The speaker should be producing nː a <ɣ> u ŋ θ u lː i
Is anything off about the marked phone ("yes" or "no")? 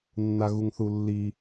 no